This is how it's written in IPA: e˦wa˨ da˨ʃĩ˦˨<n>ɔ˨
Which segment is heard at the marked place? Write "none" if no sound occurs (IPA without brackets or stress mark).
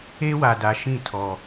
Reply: tʰ